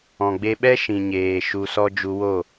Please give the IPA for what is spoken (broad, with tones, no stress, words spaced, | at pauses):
ɔ̃˨ ɡ͡be˧ɓɛ˦ ʃĩ˨ɲeː˨ ʃu˧sɔ˦ d͡ʒu˧wo˦˨